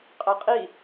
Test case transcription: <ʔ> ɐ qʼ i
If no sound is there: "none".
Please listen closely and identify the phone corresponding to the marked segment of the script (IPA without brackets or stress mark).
qʼ